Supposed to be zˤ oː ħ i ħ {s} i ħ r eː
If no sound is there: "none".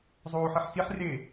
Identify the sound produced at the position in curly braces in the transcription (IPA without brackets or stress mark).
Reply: s